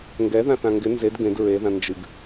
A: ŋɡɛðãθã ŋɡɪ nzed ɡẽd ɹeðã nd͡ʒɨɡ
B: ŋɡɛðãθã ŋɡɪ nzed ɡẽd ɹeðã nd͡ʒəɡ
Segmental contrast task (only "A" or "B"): A